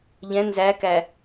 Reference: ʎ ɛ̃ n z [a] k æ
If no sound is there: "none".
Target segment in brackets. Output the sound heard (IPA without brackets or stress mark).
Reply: æ